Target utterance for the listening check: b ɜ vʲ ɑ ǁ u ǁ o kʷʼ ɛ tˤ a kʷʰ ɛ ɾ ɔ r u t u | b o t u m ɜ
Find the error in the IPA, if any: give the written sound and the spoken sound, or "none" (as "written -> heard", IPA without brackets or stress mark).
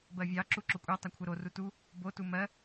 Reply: ɔ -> o